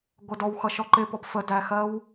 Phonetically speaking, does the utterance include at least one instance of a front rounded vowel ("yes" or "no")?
no